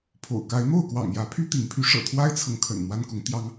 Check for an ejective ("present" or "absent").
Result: absent